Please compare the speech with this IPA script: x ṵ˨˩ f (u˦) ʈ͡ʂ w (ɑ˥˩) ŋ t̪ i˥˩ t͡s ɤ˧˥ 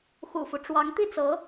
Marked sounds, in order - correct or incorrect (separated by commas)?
correct, incorrect